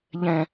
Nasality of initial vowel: nasal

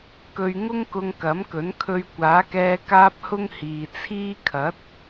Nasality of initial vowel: oral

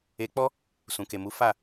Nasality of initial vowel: oral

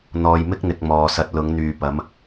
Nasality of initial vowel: oral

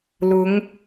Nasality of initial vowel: oral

